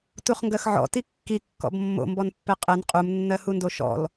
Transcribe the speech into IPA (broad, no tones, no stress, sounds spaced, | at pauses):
t u χ ŋ ɡ ɜ x ʕ ɔ̰ t i kː i kː ɔ̰ b mː o̰ m b ɔ n pː ɛ qʼ ɛ n qʼ u m nː ɜ h u n d o ʃ ɔ̰ l